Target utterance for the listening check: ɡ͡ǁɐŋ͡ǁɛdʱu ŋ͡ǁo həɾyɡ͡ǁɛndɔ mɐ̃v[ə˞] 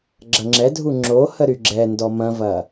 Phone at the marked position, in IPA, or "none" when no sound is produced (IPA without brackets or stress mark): ɐ